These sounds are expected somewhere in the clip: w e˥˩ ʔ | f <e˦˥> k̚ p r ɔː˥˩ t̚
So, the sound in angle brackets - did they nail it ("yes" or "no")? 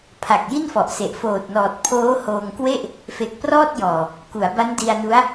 no